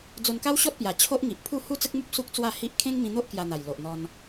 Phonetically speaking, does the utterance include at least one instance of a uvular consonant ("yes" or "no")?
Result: no